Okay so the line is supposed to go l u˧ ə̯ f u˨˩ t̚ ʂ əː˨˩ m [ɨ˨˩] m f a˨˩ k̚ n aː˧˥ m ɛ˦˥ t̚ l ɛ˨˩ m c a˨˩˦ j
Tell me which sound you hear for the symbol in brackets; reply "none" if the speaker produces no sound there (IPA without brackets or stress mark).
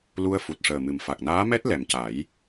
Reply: ɨ˨˩